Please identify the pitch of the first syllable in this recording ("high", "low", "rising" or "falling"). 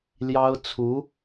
high